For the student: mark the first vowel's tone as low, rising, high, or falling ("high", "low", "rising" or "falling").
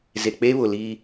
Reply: low